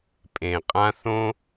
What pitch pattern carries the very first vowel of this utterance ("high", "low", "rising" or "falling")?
low